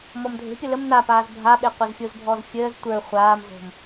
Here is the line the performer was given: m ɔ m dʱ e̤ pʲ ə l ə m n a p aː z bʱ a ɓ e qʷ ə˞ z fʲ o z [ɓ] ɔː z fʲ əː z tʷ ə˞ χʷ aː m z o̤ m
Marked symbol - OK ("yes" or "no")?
no